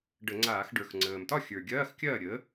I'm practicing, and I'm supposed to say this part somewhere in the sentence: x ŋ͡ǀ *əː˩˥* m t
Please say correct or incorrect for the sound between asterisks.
incorrect